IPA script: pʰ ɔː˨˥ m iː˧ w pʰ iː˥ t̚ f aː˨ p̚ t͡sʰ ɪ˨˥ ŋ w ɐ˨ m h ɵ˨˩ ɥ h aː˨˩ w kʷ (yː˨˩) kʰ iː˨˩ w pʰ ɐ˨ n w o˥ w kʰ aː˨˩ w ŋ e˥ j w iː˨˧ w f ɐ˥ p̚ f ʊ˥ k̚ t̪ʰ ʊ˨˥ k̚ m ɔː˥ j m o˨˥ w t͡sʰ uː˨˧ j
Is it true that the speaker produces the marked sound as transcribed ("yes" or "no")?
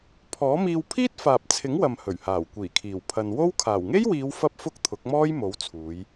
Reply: no